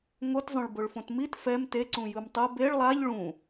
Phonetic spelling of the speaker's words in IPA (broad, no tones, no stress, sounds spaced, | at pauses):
ŋ o t zˤ õ ɭ b o ɭ f õ t m i t f ɛ m t e ǀ ũ j ɯ m tˤ o b e ɭ lˠ a ʎ ɭ ũ